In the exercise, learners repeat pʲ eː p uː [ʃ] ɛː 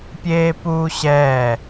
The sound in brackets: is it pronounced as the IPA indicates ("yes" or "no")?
no